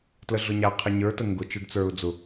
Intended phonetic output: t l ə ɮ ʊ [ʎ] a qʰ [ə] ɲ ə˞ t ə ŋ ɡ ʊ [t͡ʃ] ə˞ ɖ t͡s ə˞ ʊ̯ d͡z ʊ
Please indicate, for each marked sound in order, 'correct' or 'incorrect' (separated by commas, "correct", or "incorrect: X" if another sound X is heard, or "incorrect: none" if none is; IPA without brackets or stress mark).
incorrect: ɲ, correct, correct